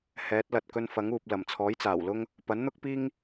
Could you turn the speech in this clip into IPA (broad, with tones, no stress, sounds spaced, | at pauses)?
h ɛː˨˥ t̚ l ɐ˨ t̚ k ɵ˧ n f ɐ˨˥ ŋ uː˨ p̚ l ɐ˨˩ m t͡sʰ ɔː˨˥ j t͡s aː˨˩ w l ʊ˥ ŋ | p ɐ˨˥ n n̪ ʊ˥ k̚ p iː˥ ŋ